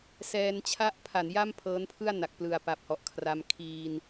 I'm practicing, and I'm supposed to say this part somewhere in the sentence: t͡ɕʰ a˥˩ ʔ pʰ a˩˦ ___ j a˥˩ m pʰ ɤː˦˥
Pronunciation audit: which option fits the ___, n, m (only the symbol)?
n